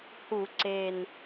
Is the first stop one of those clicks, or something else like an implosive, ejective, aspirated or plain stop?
click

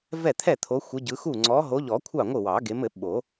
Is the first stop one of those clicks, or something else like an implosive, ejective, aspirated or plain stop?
aspirated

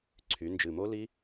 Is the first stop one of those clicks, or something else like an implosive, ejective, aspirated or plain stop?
click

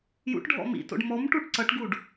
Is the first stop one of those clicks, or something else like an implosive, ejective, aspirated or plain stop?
plain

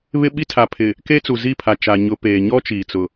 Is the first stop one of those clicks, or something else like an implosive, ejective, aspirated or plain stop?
implosive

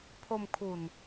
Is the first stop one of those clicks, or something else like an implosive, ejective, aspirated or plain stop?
aspirated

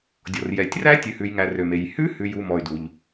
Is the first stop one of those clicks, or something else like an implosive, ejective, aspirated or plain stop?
plain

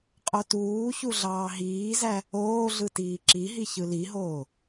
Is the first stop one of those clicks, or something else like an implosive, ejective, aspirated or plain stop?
ejective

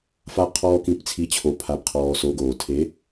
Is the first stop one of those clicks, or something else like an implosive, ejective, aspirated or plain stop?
aspirated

